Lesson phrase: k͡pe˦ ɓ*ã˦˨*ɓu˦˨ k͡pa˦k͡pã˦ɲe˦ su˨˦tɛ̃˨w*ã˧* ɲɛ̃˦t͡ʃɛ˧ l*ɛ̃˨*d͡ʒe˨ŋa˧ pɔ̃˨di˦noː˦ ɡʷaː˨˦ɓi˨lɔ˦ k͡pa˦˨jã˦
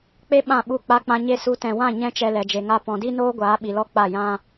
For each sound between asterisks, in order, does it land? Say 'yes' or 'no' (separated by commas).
yes, no, no